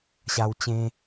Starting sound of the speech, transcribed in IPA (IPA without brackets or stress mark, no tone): ɕ